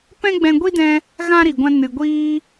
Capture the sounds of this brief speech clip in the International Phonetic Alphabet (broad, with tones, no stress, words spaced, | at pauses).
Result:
pɛ̃˦ɡ͡bɛ̃˧ɡʷi˦dɛ̃˧ | ɣã˦ɾi˨ɡʷã˧ nɨ˨ɡʷiː˧